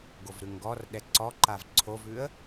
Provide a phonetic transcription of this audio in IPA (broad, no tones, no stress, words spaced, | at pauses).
ɡovɾʉŋɡɔrɗɛ ǀɔǃav ǀʰovʉə̯